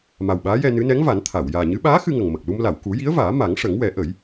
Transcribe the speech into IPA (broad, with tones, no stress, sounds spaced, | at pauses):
m a˨˩ w ɓ aː˧˥ j ɛ˧ n ɨ˧˥ n ɛ˧˥ ŋ v a˨˩˦ n t̪ʰ a˨˩˨ w j aː˨˩ ɲ ɨ˧˥ ɓ aː˧˥ x ɨ˧ ŋ ə˨˩ ŋ m ə˨˩ k̚ l u˧ m l a˨˩˨ w k u˨˩˦ j i˧˥ ə̯ v aː˨˩˦ m a˨˩˦ ŋ ʂ ə˨˩˦ ŋ w ɛ˨˩˦ ʔ ə˨˩˦ j